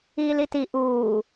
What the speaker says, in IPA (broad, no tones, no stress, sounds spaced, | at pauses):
iː l i t i ʔ uː